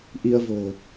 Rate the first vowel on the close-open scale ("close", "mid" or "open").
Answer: close